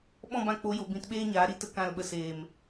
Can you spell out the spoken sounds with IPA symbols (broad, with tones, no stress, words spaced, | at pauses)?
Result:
ɓɔ̃˦˨bã˧k͡po˨˦jo˨ bĩ˨t ɓeː˦ɲaː˨˦ɾi˦ tə˦kã˦˨lɓə˧ seː˨m